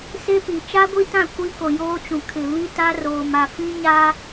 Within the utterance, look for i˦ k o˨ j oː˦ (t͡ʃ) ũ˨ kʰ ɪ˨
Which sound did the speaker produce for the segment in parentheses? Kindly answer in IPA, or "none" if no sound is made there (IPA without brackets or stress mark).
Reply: t͡ʃ